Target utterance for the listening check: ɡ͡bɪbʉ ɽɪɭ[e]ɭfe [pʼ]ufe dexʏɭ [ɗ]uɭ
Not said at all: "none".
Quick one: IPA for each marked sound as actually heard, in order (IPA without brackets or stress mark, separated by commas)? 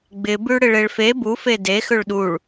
e, b, ɗ